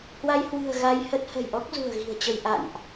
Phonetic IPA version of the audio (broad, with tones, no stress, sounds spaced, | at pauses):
h w a˧ j h w ɨ̤˨˩ ə̯ ɣ a˧ j h ə˦˥ t̚ h ə̤˨˩ j ʔ ɔ˦˥ k̚ z ṳ˨˩ ə̯ ɣ i̤˨˩ ə̯ t͡ɕ ə˧ j ʔ a̰˧˨ n ʔ